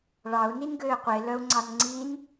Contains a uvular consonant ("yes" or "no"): yes